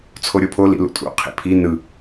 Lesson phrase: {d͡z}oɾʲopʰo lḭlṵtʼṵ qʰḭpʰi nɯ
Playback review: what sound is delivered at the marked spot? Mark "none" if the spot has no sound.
t͡sʰ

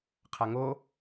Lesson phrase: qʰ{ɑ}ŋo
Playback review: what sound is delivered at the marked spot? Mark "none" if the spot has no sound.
a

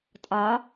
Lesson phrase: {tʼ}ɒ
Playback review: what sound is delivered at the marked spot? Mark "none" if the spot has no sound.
tʼ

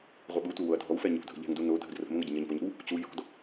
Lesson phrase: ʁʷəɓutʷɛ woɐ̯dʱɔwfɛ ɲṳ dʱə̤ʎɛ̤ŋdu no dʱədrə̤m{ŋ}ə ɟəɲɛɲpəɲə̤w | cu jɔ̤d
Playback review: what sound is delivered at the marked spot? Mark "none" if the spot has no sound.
ŋ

